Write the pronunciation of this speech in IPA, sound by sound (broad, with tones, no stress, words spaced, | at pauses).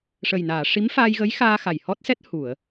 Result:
ʂə˨˩jnaː˨˩˨ ʂi˧˥mfaː˧jɣə˧˥j xaː˧ xa˨˩jhɔ˦˥t̚sɛ˦˥t̚ hu˨˩˨ə̯